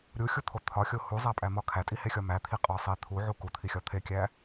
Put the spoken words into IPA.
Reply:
ɾʲ u xʲ u t̪ʰ o t̪ʰ ɒ xʲ o h u zˤ æ pʼ æ m ɒ kʰ æ tʼ i h e xʲ ɒ m æ t̪ʰ i qʼ ɒ sˤ e t̪ʰ u ʕ u k u t̪ʰ i xʲ ɒ t̪ʰ e kʲ æ

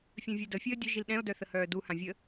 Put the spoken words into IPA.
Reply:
fʲ œ̃ vʲ ɛ d ə fʲ əː dʲ ʊ ʒ i l ɗ ɛ̃ o̯ d œ θ ə h œː d u h ã vʲ ə

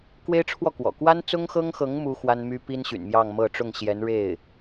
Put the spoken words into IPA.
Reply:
k w e˥ ɪ̯ ʈ͡ʂʰ w ɔ˥˩ k w ɔ̰˨˩ k w a˥ n t͡s ʊ˥ ŋ x ɤ˥ ŋ x ɤ˧˥ ŋ m u˥ x w a˥ n m y˥ p i˥ n ɕ y̰˨˩ n m j ɑ˥˧ ŋ m ɤ˥˧ ʈ͡ʂ ʊ˥˩ ŋ ɕ j ɛ˧˥ n ɻ e˥˩ ɪ̯

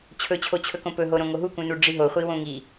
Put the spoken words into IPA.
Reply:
t͡ɕʰ ɵ t͡ɕʰ o t͡ɕʰ ɵ k õ p ɵ ɦ o ɾ õ ŋ o ɦ u k ũ n u ɖ͡ʐ i ɦ o χʷ i w õ ŋ i

